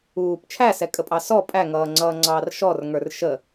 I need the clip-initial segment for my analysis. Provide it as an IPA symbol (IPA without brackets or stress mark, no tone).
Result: uː